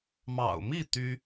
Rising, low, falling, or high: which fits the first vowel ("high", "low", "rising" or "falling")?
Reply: low